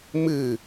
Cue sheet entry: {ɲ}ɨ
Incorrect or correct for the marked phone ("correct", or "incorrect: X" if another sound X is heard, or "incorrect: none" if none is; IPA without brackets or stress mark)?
incorrect: m